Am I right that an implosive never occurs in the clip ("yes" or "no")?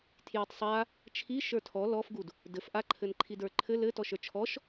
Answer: yes